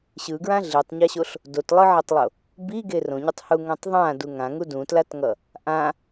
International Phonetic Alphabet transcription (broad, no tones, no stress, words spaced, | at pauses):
ɕɯɡɹã ɮitˤɲaɕoɬ | dotlˠɯʕɛtˤlˠo | biɡe rõɲotˤhuŋõtˤ ðˤãdu ŋãŋu dũtlatŋʌ | ʔã